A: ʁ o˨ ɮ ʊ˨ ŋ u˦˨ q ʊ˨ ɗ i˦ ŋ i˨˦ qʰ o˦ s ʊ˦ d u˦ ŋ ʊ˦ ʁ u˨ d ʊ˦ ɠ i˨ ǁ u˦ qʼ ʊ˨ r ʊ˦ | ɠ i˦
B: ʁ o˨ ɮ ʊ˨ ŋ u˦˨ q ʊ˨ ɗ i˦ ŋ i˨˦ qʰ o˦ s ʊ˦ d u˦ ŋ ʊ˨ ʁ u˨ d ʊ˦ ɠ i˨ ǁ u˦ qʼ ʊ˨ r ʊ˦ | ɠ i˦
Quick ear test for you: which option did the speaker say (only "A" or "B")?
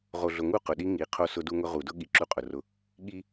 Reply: A